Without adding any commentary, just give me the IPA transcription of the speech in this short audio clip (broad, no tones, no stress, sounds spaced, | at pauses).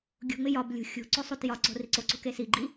ɡʲ ṳ ŋ͡m ɪ j ɒ b lʲ ṳ xʲ ṳ ǀ o sˤ u t j ɒ ǀ o̤ r i ǀ o ǀ ṳ k e s i ɡ͡ǃ i